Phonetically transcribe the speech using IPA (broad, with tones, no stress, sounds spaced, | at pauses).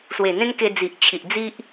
s w e˨˩ n̪ ẽ˦ n k e˧ d͡z i˨ ʔ t͡ɕʰ i˨ ʔ d͡z i˦ ʔ